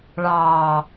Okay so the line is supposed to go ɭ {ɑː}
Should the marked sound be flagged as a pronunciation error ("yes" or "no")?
no